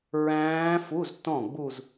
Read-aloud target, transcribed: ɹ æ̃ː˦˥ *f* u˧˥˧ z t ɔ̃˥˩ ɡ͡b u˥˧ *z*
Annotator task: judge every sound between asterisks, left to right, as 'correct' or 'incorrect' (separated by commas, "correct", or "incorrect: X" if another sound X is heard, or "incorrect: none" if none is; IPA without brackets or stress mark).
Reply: correct, correct